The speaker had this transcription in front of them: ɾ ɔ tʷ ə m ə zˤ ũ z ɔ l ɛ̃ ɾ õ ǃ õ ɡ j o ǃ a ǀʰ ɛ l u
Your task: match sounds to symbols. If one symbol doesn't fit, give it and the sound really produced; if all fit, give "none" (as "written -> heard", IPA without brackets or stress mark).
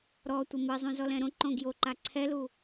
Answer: none